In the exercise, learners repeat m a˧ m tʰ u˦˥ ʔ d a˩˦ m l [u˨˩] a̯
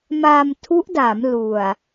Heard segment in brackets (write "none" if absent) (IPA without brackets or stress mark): u˨˩